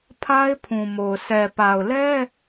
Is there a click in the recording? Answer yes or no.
no